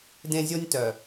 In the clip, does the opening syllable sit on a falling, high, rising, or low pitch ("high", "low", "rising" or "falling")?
high